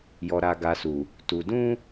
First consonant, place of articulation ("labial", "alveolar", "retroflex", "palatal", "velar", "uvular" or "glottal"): palatal